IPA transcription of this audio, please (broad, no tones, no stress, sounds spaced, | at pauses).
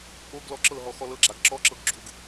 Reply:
ʔ o ɡ l ɔ ǁ ɤ ɦ ɔ x ɔ l ɤ ɡ͡ǁ a ɡ ǁ ɔ ǁ ɤ ɡ ɡ͡ǁ u ɡ